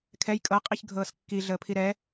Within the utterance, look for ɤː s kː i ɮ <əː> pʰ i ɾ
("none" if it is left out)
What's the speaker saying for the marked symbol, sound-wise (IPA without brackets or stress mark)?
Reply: əː